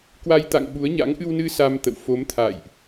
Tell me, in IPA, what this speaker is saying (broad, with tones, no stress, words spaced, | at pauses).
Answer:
kwa˧jt̪a̰˧˨ŋɓu˨˦ə̯ ɲa̰˧˥ŋ ʔɨ˧wnɨ˧ sa˧mt̪ə̰˧˨w fo˨˦mt̪ʰa̰ː˧˨jʔ